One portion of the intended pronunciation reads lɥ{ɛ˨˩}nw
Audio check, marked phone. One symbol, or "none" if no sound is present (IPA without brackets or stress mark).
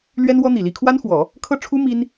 ɛ˥